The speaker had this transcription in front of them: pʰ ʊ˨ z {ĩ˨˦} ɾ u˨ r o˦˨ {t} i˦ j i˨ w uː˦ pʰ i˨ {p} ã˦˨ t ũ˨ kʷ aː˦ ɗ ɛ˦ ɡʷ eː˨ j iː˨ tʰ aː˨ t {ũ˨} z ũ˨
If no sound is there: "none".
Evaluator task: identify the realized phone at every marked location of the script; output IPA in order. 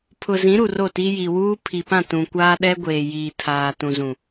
ĩ˨˦, t, p, ũ˨

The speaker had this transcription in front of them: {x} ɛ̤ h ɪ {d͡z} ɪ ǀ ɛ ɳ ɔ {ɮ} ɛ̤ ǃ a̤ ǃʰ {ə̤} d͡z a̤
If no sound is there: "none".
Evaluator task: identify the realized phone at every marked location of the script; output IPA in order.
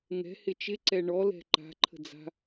ŋ, t͡ʃ, l, ə̤

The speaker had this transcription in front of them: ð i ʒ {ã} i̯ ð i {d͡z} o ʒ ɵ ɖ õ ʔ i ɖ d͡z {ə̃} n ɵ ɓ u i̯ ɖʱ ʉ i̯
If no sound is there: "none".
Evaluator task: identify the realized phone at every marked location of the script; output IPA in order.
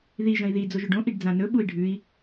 ɐ̃, d͡z, ã

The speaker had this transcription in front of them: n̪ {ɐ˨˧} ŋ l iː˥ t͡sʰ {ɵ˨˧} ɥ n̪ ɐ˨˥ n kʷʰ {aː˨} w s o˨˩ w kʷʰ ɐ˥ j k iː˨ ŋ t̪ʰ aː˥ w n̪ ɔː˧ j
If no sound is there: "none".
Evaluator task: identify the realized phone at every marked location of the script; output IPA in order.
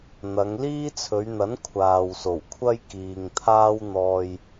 ɐ˨˧, ɵ˨˧, aː˨

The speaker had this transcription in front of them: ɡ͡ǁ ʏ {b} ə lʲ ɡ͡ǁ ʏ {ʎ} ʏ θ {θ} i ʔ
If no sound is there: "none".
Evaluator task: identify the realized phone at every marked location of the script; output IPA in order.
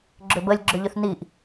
b, ʎ, n

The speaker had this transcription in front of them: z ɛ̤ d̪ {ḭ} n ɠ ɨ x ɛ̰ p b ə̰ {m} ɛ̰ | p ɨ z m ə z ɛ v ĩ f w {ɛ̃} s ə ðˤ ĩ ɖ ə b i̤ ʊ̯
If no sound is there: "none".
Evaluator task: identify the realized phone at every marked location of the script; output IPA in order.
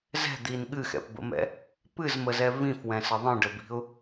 i, m, ɛ̃

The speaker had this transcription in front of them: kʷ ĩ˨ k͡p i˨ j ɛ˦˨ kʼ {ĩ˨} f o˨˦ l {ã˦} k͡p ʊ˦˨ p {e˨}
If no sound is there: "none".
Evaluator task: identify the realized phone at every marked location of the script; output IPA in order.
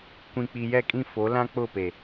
ĩ˦˨, ã˦, e˨

